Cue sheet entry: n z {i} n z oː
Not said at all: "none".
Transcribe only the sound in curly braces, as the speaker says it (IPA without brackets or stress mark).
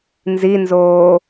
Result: i